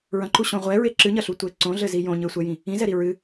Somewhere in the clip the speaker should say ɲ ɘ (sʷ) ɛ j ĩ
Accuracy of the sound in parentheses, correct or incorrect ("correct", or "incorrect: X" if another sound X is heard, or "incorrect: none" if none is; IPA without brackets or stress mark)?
correct